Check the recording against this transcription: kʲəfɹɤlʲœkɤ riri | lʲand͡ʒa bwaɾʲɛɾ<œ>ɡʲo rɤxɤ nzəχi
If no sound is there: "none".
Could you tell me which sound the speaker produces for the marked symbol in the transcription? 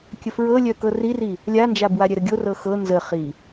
ə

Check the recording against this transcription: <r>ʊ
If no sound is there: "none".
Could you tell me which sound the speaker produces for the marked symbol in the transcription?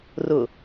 r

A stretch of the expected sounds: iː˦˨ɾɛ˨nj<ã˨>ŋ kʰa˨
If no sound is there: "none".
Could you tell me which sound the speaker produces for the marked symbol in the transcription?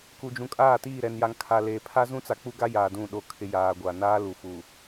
a˨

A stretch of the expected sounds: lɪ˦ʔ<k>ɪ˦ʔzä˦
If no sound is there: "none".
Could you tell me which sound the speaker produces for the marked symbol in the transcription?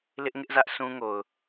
ŋ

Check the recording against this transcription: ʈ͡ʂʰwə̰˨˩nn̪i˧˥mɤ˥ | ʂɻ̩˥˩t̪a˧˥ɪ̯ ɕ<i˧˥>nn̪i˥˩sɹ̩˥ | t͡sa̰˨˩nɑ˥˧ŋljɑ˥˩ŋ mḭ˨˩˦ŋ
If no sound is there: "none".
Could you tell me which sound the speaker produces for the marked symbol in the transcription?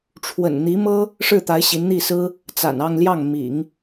i˧˥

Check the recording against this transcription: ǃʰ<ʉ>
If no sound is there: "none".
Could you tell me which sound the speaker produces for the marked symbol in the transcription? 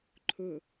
ʊ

